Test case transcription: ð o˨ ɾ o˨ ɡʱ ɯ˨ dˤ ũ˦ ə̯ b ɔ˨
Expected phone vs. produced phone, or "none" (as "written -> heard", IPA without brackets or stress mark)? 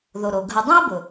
ɔ˨ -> ʊ˨